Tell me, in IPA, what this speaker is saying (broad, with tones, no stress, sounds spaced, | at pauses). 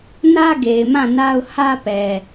n ä˦ ɡ e˨ ɪ̯ m ã˦˨ n a˦ ʊ̯ h ä˦ p ɛ˨